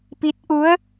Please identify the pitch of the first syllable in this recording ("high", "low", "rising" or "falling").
rising